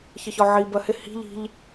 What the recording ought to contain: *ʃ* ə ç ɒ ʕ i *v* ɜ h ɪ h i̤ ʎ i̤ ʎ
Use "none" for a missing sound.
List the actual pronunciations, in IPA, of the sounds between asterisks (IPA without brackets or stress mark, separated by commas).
ç, b